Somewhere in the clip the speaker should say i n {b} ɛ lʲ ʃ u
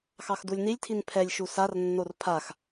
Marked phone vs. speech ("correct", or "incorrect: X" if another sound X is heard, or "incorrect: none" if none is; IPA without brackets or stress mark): incorrect: pʰ